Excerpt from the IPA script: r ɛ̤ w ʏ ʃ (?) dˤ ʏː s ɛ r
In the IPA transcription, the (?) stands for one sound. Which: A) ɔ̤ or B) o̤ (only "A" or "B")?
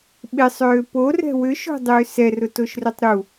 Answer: B